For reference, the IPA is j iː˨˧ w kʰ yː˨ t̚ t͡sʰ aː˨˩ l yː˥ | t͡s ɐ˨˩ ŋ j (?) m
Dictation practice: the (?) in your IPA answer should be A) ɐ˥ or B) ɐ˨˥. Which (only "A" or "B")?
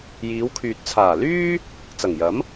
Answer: B